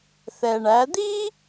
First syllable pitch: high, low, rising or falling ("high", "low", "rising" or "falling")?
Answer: low